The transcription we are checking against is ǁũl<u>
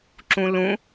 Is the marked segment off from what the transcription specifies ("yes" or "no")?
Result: yes